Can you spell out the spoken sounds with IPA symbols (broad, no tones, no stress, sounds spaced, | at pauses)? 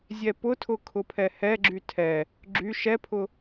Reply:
zʲ ɛ p ʊ tʰ ʊ kʰ ʊ pʰ ɛ h ɛ ɡ͡ǁ y tʰ ɛ | ɡ͡ǁ y ʃ ɛ pʰ ʊ